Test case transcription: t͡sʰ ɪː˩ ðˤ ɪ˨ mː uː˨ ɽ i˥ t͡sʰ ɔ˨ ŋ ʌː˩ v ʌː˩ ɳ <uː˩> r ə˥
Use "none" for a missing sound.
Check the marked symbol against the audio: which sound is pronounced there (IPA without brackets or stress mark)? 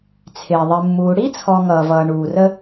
uː˩